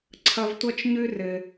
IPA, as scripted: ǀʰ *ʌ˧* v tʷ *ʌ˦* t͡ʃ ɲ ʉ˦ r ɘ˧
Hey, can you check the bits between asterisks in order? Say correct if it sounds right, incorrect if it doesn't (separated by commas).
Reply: correct, correct